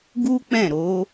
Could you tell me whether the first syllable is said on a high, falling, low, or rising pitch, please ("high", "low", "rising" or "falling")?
high